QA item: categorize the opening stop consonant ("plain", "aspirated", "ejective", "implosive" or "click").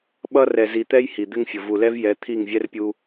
implosive